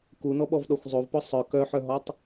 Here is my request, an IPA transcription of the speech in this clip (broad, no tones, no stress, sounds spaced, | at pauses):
k u n ɔ ɓ ɔ v ɗ ɔ xʷ zˤ o v p ɔ sˤ œ k œ ħ œ ɦ ɔ tˤ